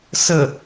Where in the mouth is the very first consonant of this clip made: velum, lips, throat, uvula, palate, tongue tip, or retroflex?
tongue tip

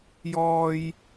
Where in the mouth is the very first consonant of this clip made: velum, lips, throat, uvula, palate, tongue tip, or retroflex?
palate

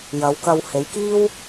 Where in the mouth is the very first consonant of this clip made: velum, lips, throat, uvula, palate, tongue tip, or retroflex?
palate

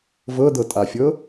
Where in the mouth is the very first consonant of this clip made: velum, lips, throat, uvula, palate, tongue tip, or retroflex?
lips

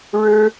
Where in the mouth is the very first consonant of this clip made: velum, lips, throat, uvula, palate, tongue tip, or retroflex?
retroflex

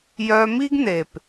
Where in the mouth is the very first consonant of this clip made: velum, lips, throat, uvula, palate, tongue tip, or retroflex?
palate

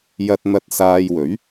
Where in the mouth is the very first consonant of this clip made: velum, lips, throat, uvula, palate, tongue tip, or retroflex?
palate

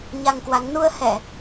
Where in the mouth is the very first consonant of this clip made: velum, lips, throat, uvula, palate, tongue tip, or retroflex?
palate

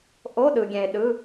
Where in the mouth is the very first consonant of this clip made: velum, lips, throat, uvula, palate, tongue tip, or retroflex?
throat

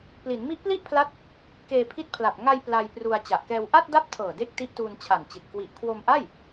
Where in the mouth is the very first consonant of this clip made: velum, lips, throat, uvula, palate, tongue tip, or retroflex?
lips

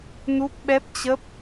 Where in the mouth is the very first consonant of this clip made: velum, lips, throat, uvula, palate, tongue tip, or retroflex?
tongue tip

